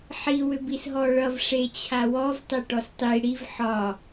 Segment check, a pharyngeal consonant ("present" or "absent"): present